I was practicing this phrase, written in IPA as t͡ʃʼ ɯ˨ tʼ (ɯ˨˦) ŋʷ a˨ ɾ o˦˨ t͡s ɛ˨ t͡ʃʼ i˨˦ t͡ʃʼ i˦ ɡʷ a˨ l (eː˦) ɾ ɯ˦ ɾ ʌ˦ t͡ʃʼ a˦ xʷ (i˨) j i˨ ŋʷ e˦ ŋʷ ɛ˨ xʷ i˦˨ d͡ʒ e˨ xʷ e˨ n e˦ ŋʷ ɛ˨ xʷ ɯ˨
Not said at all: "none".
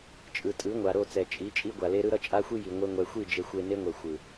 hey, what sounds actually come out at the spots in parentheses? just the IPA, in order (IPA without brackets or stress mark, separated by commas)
ɯ˨˦, e˦, i˦